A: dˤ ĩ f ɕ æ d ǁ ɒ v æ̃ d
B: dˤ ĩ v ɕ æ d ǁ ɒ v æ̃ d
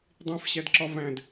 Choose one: A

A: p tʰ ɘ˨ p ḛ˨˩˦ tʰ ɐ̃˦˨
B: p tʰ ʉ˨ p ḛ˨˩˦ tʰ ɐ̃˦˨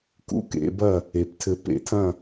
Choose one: A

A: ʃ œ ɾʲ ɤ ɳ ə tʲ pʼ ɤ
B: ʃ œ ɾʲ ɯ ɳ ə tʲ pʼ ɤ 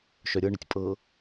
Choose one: A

